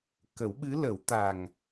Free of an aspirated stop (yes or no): yes